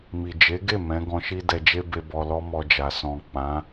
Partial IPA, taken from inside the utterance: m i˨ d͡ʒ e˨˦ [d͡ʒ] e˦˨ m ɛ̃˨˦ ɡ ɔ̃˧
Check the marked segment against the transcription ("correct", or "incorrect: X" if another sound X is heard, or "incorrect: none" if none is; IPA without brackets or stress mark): incorrect: ɡ